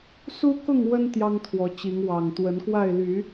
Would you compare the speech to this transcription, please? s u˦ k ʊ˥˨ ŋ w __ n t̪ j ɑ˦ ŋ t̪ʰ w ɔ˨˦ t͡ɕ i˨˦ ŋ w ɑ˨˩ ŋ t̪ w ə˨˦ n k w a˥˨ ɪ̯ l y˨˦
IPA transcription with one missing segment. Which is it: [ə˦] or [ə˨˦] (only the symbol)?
ə˦